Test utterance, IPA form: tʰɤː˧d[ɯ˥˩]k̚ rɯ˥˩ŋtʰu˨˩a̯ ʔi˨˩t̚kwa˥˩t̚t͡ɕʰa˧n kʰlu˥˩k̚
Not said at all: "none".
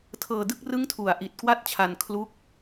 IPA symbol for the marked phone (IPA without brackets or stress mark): ɯ˥˩